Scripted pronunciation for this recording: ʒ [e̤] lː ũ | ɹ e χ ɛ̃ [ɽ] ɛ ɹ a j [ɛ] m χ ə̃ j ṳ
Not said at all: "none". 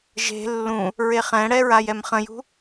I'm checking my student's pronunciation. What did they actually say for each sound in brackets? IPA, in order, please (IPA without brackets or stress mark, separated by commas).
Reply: e̤, ɽ, ɛ